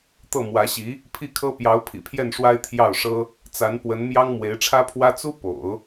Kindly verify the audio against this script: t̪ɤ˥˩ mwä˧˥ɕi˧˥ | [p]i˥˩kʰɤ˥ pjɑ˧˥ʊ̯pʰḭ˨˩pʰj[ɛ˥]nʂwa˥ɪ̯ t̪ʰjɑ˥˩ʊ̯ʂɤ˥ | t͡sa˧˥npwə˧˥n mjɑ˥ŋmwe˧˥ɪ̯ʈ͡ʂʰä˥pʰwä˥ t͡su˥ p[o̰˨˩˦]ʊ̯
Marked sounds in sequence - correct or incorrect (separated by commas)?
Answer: incorrect, incorrect, correct